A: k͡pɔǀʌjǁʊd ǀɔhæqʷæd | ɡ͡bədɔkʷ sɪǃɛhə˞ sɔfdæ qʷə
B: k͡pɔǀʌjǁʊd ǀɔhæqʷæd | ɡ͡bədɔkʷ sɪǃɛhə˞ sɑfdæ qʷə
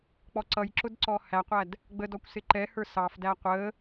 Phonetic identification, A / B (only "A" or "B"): B